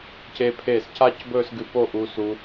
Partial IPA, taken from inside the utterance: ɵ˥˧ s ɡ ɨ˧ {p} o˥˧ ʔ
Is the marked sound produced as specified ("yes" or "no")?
yes